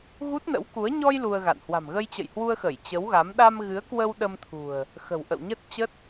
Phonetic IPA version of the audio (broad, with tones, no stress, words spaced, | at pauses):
ɣu˦˥t̚nə̰˧˥wku˨˦ə̯ ɲɔ˧j lu˧ə̯ɣa̰˧˨n hwa̤˨˩mɣə˧jt͡ɕə̰˧˨jhwu˧ə̯ xə˧˩jt͡ɕə˨˦wɣa˨˦m ɗa˧mɣɨ˨˦ə̯kwə˧w ɗə˧mt̪ʰṳ˨˩ə̯ | xə̤˨˩wʔə̰˧˨wɲə˦˥t̚t͡ɕə˦˥t̚